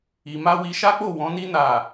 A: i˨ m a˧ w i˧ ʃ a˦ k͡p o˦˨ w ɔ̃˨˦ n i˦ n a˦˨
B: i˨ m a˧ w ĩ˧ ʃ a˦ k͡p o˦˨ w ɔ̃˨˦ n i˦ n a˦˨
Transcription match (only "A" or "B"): A